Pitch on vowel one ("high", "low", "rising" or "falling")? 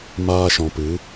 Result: low